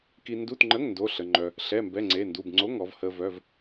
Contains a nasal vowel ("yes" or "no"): no